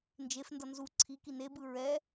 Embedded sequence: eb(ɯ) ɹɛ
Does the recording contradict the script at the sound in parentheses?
no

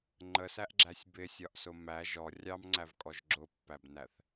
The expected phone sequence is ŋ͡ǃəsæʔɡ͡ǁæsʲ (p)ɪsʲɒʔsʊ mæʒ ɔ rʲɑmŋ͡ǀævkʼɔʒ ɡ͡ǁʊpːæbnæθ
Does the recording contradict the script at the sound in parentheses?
yes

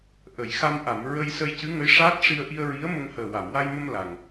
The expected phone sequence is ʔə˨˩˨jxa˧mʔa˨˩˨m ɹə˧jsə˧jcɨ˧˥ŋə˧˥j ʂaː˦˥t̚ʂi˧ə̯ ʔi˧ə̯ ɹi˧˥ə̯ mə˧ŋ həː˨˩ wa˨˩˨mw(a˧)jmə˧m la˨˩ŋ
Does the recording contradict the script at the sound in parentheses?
no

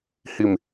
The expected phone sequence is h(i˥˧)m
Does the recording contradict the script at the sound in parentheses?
no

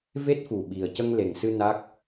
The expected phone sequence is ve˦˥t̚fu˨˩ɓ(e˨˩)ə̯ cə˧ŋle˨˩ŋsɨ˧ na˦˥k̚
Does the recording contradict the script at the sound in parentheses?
yes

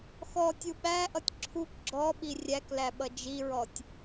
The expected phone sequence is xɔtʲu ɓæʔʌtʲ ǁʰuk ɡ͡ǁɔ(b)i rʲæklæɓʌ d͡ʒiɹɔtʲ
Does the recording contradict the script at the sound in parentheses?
yes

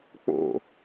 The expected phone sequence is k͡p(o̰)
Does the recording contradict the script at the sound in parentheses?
no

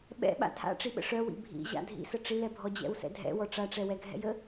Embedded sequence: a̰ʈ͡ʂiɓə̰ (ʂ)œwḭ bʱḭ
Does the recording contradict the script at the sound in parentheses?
no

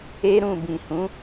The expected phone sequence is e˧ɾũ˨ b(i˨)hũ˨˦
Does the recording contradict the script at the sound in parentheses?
yes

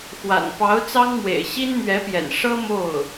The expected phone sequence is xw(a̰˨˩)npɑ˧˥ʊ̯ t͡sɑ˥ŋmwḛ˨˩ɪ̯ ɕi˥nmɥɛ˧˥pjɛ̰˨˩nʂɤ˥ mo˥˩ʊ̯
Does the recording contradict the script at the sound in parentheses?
no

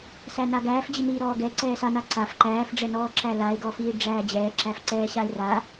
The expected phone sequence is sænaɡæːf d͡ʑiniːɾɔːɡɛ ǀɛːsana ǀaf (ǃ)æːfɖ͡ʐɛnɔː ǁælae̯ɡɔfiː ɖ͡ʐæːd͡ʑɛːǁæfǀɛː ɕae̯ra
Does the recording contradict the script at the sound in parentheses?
no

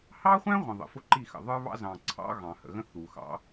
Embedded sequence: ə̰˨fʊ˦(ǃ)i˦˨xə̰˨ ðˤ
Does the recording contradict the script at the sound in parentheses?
no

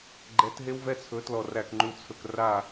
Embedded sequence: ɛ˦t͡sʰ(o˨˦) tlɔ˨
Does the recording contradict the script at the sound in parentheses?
yes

